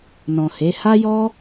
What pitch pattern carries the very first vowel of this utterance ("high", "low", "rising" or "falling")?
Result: low